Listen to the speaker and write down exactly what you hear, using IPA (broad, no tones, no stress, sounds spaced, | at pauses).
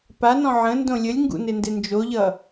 p a n ɔ̃ ʕ ə̃ n d õ lʲ ə lʲ ŋ ɡ ṵ n ɪ n d ɪ n d͡ʒ o ʎ ʌ